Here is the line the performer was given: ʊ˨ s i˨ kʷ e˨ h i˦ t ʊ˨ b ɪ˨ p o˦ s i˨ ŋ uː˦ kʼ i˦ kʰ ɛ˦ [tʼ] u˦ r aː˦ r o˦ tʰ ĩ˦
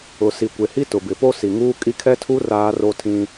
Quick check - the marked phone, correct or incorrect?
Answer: incorrect